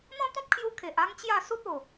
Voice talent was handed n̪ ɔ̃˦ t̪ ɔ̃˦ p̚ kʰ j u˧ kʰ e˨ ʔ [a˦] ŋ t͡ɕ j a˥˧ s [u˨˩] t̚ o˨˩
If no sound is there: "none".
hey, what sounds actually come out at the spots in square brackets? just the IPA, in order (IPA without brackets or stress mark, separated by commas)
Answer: a˦, u˦